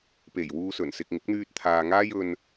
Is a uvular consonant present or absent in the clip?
absent